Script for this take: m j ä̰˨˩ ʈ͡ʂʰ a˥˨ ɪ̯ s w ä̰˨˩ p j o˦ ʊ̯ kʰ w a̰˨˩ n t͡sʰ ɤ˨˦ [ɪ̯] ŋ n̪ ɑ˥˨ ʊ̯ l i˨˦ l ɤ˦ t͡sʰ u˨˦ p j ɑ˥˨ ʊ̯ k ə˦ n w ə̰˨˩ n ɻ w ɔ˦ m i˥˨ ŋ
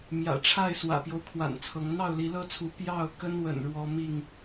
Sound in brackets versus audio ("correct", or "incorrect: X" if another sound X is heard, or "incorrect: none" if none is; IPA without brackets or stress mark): incorrect: none